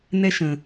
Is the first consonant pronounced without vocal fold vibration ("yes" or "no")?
no